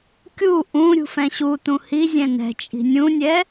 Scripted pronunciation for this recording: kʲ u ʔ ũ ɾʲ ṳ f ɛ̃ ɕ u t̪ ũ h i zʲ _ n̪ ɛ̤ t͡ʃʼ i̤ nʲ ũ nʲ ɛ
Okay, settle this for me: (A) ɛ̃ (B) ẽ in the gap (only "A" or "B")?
A